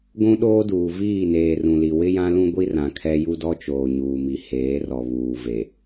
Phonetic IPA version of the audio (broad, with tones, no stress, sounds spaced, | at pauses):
ɡʷ ũ˦ ɗ oː˦ d uː˨ v iː˦˨ n eː˨ r ũ˨ l i˨ w ɪ˦ j ã˦ l ũ˦ ɡʷ i˦ r ã˨ kʰ ɛ˦ j u˦ d ɔ˦ t͡ʃ oː˨ ɲ uː˨ m i˨ h eː˨˦ r ɔ˨ β uː˨ v e˨